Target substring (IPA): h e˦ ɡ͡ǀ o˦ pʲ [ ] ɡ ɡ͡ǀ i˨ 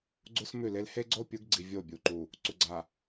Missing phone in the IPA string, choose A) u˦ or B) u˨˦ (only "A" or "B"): B